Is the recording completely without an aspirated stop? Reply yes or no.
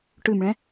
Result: yes